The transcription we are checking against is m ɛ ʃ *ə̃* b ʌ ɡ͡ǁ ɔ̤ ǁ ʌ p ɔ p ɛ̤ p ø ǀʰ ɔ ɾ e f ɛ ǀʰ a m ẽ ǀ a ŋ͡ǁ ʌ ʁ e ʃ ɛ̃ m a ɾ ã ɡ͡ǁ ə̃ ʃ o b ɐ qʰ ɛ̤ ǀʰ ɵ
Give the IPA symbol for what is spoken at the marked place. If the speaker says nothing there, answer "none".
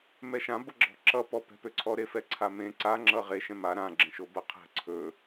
ã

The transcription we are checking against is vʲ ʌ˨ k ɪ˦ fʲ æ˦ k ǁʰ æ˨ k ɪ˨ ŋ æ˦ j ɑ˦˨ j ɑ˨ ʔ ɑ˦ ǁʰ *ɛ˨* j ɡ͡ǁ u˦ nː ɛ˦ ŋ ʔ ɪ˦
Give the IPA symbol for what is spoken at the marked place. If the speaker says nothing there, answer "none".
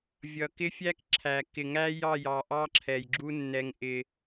ɛ˨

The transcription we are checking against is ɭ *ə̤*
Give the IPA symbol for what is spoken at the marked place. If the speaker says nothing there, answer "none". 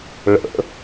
ə̰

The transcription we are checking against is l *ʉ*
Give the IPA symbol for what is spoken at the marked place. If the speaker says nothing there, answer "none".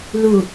u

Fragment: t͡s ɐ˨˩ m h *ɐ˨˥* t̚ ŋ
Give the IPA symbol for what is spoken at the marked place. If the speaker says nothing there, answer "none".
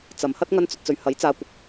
ɐ˥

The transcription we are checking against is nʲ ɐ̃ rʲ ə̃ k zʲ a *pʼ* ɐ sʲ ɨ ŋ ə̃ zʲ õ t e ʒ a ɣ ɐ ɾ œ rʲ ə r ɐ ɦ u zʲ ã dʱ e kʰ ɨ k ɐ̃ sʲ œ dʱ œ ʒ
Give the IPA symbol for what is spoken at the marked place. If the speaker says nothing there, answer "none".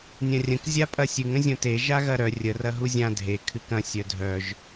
pʼ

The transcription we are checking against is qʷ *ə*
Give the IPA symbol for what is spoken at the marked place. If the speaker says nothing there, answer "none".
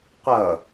ʌ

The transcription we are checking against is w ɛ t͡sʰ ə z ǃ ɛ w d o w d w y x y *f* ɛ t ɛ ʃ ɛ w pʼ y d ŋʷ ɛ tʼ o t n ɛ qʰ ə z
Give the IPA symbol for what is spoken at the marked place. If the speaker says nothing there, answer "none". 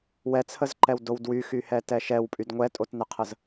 h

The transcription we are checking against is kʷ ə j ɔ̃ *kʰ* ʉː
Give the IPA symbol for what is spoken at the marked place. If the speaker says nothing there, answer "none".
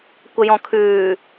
kʰ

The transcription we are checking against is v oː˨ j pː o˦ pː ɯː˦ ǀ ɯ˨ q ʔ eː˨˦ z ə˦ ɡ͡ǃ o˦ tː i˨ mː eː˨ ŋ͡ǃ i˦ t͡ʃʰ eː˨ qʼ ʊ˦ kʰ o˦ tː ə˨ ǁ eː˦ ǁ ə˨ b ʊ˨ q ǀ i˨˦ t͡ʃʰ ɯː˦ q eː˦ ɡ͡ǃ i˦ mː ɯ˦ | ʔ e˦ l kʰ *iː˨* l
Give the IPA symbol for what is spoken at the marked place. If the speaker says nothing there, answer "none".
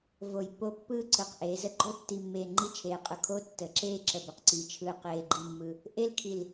i˨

